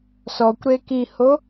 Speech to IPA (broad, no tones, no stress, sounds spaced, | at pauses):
s ɔ kʷ ɾ e k i h o